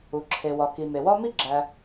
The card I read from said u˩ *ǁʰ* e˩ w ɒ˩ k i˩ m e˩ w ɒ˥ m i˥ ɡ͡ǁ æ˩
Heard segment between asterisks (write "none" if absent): ǁʰ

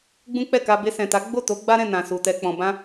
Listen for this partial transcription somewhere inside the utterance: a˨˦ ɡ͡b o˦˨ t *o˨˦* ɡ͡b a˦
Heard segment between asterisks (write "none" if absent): o˨˦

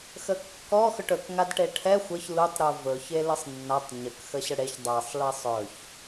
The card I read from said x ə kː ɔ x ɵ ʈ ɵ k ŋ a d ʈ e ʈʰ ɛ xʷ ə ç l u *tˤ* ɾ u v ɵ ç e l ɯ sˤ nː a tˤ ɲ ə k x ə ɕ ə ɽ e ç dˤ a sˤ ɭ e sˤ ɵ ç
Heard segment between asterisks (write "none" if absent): tˤ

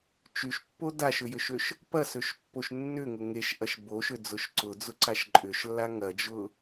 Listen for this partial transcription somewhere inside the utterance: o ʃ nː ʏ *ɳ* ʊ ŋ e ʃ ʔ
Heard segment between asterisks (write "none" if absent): ŋ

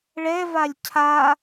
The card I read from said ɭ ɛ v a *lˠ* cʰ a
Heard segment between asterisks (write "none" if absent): lʲ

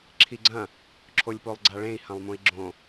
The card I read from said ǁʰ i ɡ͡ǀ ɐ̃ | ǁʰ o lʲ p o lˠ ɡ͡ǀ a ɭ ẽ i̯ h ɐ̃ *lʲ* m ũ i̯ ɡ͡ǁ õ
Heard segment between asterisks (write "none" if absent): lˠ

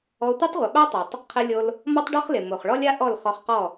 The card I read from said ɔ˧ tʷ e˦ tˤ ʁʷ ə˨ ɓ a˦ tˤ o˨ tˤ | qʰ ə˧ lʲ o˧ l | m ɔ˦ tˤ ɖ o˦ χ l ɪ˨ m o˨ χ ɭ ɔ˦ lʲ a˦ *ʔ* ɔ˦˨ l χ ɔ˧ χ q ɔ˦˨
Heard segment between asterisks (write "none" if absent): ʔ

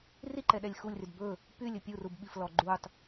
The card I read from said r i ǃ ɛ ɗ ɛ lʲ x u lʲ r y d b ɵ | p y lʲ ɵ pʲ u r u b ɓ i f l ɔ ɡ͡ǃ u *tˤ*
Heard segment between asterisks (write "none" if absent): tˤ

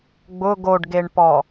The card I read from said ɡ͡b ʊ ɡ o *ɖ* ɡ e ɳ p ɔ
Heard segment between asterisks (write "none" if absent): ɖ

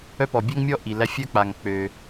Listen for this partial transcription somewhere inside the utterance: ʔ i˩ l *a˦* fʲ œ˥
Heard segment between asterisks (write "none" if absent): æ˦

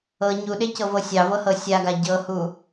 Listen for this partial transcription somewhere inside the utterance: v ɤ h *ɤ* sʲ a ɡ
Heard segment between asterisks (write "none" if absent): ɤ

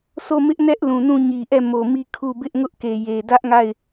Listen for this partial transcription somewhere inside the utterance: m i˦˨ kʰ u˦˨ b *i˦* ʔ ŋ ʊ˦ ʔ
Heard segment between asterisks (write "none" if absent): ɪ˦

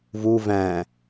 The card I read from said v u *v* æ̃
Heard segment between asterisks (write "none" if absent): v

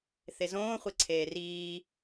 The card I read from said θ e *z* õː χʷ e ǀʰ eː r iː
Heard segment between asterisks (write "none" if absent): z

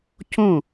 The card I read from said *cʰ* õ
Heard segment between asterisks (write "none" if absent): cʰ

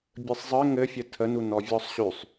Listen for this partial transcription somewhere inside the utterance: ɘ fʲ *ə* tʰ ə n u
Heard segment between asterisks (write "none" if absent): ə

